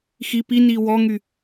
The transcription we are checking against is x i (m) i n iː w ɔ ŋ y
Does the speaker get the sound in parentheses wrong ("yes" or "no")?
yes